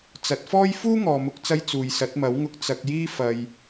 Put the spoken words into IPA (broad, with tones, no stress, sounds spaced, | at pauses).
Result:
t͡s ɐ˨˥ t̚ f ɔː˥ j f uː˥ ŋ ɔː˨ m ʊ˨˥ k̚ t͡s ɐ˧ j t͡s uː˨ j s ɐ˨˥ t̚ m ɐ˨˥ w ŋ ʊ˧ k̚ t͡s ɐ˧ k̚ j iː˥ f ɐ˨ j